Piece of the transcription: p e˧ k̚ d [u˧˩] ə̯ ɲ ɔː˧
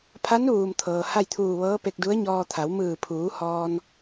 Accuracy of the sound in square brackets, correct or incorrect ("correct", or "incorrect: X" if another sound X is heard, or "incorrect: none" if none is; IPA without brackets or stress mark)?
incorrect: u˧˥